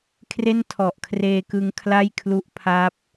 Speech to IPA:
kʰ r e˥˩ n tʰ ɔ˨˩ ʔ kʰ r eː˧ k ɯ˧ ŋ kʰ l a˥˩ j kʰ l u˦˥ ʔ pʰ a˦˥ p̚

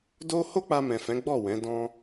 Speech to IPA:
d o˦ h o˦ k͡p a˧ m ɛ̃˨ f ɛ̃˨˦ ɡ͡b ɔ˦˨ w ɛ̃˨˦ d ɔ̃˦

